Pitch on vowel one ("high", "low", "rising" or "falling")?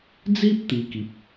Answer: high